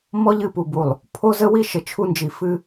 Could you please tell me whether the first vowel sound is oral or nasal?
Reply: oral